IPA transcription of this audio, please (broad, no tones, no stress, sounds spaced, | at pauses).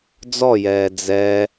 d͡z ɔ j ɛː d͡z ɛ